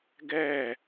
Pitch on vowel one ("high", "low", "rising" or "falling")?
falling